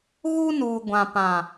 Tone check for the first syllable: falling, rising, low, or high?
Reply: high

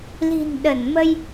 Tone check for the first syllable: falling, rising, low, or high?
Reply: low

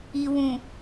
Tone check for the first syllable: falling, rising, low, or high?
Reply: low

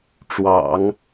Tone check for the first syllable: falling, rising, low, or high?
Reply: low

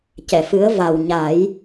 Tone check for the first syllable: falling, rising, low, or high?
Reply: low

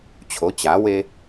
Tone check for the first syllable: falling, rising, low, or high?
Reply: rising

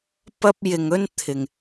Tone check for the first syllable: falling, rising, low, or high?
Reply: high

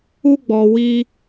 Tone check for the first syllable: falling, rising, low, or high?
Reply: high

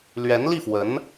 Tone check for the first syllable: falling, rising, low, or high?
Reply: rising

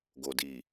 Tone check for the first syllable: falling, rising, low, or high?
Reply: low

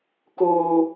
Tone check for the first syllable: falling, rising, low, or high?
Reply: high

